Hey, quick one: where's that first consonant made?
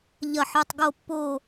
palate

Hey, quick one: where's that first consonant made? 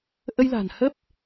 throat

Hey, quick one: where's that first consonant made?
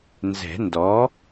tongue tip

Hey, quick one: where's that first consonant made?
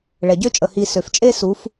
retroflex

